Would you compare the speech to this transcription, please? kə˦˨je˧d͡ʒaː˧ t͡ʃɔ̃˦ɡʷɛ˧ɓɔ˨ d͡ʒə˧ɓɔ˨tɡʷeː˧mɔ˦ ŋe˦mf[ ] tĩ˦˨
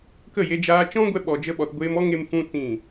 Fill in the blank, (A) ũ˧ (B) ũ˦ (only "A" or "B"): B